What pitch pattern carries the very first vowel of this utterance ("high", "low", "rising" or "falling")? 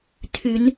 low